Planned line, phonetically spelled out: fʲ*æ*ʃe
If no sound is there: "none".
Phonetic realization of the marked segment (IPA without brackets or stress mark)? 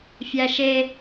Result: æ